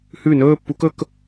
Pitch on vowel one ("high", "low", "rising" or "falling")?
falling